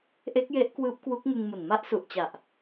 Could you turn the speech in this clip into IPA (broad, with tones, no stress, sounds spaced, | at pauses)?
ʔ e˦˥ k̚ j e˦˥ ʔ k w ɯː˦˥ p̚ k w u˦˥ k̚ ŋ ɯ˧ ŋ m u˨˩ n m a˦˥ ʔ s u˨˩ ʔ t͡ɕ a˨˩ ʔ